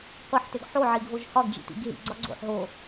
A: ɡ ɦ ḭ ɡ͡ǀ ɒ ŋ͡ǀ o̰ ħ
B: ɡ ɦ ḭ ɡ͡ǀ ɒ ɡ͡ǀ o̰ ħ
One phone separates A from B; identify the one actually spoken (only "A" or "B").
B